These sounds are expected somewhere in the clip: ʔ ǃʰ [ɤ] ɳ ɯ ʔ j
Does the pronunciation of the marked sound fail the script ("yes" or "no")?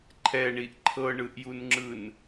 no